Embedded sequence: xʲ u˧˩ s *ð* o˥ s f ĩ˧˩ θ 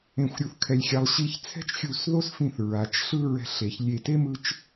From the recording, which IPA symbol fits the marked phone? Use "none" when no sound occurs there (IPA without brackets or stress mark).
ð